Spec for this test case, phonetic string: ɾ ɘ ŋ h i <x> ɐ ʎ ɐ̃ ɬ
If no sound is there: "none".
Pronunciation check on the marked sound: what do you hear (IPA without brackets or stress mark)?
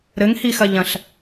x